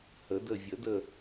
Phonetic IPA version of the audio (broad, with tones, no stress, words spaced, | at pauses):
hə˨˩˦də˦˨ vʲə˨˩˦də˦˨